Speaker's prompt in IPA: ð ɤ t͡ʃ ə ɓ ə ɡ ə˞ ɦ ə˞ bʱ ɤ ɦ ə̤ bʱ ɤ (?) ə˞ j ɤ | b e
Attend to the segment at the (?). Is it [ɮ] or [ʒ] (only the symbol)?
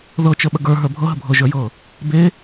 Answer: ʒ